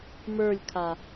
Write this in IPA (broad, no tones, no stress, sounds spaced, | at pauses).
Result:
m ə˞ lʲ kʰ a